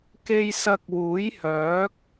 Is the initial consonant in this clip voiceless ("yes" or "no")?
yes